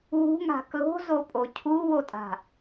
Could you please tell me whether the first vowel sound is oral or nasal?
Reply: oral